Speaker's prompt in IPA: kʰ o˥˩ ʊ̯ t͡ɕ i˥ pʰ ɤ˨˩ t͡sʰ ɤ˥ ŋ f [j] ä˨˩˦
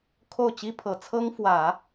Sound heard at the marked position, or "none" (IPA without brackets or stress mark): w